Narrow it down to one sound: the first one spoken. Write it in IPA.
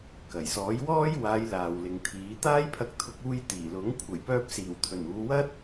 k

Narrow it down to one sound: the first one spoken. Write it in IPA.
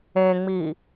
ẽ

